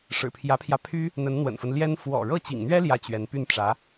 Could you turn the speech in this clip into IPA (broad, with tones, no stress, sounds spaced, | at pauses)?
ʂ ɻ̩˨˩ pʰ j ä˧˥ pʰ j ä˧ pʰ y˥ | n̪ ə˧˥ n n̪ w ə̰˨˩ n f ə˦ n l j ɛ˥ n f w ɔ̰˨˩ ɻ ɤ˥˩ t͡ɕ ḭ˨˩ ŋ n̪ ɥ ɛ˥ l j ä˥˩ t͡ɕ ɥ ɛ˧˥ n p y˥˩ n ʈ͡ʂ ä˧˥